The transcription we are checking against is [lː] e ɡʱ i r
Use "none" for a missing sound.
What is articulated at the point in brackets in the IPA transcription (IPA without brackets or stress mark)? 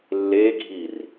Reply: lː